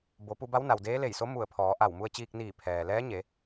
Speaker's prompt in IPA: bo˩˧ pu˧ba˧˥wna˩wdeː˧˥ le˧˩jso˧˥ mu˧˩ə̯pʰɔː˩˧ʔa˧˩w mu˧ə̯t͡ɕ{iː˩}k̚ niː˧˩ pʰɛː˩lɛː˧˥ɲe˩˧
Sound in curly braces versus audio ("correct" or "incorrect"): incorrect